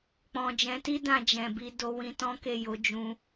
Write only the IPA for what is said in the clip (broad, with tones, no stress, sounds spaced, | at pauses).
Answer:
k͡p ɔ̃˨ d͡ʒ ɛ̃˨˦ t i˦ d ã˧ d͡ʒ ɛ̃˨ b i˧ d o˧ w ĩ˧ t ɔ̃˦ k e˦˨ j o˨˦ d͡ʒ ũ˧